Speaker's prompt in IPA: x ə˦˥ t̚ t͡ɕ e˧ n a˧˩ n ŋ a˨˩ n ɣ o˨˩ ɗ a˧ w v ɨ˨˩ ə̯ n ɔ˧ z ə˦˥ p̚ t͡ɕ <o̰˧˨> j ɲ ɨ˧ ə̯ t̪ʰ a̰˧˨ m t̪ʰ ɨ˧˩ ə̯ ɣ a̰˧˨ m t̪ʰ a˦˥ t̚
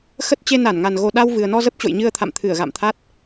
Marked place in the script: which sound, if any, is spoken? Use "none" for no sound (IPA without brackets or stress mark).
o̰˧˨